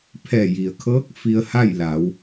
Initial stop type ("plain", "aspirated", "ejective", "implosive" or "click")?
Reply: aspirated